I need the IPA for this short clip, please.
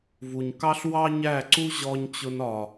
v u˨ ɲ k ɑ˦ ɬ w ɑ˦ ɲ æ˦˨ ǀ u˦ ʑ ɔ˧ ɲ t͡ɕ ʊ˧ n ɒ˨

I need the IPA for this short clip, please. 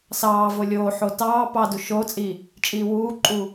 s ɑː v o lʲ oː ħ o t ɑː p ɑ d u ʃ oː t͡sʼ iː | t͡ʃʼ iː w uː ǃʼ uː

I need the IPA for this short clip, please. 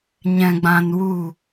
ɲ ɛ̃˧ ɡ͡b ã˧ n w u˦˨

